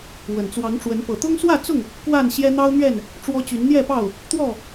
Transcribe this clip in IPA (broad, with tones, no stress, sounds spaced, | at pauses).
w ə˨˩ n t͡s w ɑ˨˦ ŋ ʈ͡ʂ w ə˨˦ n p ɤ˨˩ t̪ ʊ˦ ŋ s w ä˥˨ t͡s ʊ˥˨ ŋ | k w a˥˨ n ɕ j ɛ˦ n̪ ɑ˦ ʊ̯ n̪ ɥ ɛ˥˨ n | ʈ͡ʂ w ɔ˦ t͡ɕ y˨˦ n n̪ j ɛ˥˨ p ɑ˥˨ ʊ̯ | t̪ w ɔ˥˨